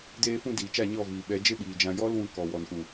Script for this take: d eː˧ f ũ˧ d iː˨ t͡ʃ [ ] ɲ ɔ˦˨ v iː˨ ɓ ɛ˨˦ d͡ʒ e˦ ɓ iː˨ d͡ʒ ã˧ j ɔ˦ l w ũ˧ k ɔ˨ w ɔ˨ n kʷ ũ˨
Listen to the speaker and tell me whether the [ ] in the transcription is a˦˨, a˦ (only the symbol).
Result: a˦˨